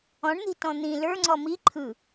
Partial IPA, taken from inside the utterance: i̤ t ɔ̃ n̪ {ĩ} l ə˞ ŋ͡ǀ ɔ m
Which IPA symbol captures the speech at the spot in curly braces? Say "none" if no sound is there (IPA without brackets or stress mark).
ĩ